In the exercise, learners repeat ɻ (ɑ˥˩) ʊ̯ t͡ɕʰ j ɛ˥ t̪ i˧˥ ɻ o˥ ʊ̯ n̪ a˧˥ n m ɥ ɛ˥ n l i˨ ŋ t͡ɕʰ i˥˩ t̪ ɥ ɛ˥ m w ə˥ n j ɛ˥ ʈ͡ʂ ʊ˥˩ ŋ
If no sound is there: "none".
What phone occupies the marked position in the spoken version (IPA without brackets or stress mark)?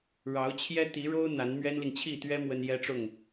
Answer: ɑ˧˥